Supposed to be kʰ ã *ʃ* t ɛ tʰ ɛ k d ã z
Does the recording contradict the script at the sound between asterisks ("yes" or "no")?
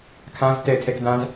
yes